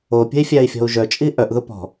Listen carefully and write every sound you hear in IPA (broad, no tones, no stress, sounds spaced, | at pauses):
o pʲ ə̤ i̯ fʲ æ i̯ fʲ ɔ̤ u̯ ʒ œ t͡ʃʼ i ʔ œ ʔ ð ʊ p ɔ̤